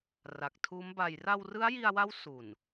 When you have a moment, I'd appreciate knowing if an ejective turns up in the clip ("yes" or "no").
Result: no